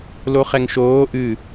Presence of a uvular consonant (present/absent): present